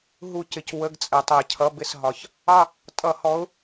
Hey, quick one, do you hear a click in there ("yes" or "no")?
no